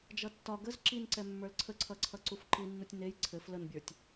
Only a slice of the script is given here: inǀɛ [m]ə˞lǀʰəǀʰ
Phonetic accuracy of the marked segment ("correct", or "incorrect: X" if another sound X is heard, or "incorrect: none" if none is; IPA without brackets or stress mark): incorrect: mː